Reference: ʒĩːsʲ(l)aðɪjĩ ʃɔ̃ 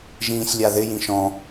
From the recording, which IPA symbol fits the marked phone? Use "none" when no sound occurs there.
lʲ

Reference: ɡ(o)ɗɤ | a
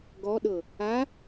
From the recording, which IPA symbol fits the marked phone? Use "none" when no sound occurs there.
ɔ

